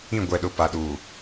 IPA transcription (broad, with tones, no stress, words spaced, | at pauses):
ĩ˦˨ ɡʷɛ˨ɗʊ˨ pa˨˦ɗuː˨